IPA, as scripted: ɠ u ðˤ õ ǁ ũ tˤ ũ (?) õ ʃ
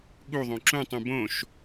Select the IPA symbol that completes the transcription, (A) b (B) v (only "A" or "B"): A